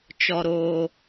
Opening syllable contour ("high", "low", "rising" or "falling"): low